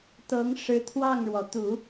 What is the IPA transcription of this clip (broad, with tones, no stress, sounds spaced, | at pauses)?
t̪ ɤ˧˥ ŋ ʂ ɻ̩˧˥ t̪ʰ w ɑ˥˩ ŋ ɻ w ɔ˩ t̪ u˨˩˦